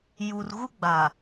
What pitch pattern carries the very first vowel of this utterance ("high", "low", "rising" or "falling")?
low